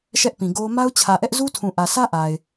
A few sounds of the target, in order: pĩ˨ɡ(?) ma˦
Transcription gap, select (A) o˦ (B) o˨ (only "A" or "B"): A